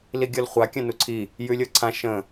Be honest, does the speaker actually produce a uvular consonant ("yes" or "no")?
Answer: yes